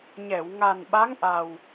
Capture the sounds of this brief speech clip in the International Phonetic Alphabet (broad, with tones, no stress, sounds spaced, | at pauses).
ɲ ɛ˨˩˨ w ŋ a˨˩ n ɓ a˧˥ ŋ ʔ a˨˩ w